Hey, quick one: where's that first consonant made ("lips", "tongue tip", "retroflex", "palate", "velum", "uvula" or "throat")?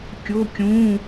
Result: velum